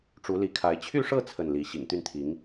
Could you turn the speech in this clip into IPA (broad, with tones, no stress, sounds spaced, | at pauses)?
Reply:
ʈ͡ʂ u˧˥ l i˧˥ kʰ a˧˥ ɪ̯ t͡ɕʰ y˥˧ ʂ ɤ˥˧ t͡sʰ ə˥˩ n l i˧˥ ɕ ḭ˨˩ ŋ t̪ y˥˩ n t̪ʰ i˧˥ ŋ